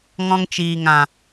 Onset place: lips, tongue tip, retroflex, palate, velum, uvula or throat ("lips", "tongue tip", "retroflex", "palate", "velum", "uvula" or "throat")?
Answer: velum